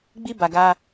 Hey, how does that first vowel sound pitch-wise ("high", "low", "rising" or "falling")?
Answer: high